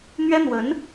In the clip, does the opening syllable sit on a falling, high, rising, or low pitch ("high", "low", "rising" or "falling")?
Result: high